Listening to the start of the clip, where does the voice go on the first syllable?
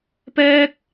high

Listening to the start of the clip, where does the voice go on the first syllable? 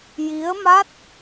rising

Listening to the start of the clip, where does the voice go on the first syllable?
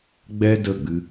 high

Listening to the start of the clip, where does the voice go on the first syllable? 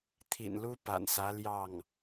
low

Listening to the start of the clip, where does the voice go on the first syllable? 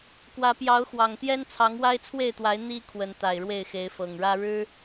rising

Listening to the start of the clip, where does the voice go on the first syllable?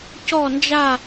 falling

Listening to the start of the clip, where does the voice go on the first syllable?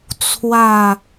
falling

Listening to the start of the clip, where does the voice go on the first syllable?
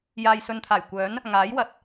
low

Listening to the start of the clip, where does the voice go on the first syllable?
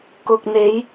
low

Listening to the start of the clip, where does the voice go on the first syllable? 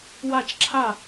falling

